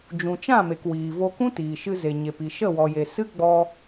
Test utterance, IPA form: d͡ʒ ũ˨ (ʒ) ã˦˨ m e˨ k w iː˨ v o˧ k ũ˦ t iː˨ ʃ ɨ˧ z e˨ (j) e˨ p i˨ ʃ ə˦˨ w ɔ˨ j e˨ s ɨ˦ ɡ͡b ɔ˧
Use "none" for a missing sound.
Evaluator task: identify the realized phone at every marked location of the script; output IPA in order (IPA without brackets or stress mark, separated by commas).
t͡ʃ, ɲ